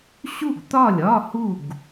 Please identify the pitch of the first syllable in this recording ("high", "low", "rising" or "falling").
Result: falling